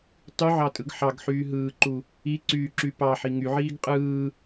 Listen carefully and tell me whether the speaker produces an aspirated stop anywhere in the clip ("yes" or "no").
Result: no